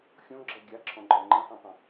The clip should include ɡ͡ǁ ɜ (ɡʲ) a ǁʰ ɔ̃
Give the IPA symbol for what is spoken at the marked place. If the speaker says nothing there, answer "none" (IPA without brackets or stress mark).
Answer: ɡʲ